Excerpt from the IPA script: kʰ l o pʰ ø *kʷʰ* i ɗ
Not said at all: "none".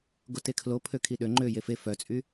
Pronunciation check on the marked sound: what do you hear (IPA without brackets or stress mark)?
kʰ